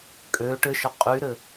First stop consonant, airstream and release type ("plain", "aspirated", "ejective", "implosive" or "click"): ejective